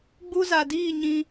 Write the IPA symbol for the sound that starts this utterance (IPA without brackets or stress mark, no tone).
ɡ͡b